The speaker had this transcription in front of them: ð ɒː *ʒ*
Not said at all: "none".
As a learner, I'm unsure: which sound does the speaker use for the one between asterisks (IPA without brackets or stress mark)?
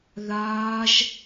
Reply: ʒ